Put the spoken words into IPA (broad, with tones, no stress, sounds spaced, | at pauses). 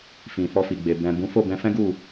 f ĩ˨ f ɔ˧ f i˨ ɡ͡b e˨ b ɛ̃˨ b ũ˨˦ f o˦˨ b ɛ̃˧ f ɛ̃˦ ɡ u˦˨